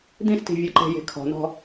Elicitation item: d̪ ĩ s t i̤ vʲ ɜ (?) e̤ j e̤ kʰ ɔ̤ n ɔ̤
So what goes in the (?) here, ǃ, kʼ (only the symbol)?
ǃ